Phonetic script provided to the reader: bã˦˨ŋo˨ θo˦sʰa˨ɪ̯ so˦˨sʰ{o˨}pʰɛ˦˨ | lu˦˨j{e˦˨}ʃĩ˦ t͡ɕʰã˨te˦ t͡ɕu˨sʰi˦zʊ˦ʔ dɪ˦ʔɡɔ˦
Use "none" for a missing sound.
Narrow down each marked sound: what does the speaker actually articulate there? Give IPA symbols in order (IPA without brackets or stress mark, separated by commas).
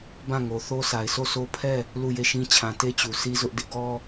o˦, e˦˨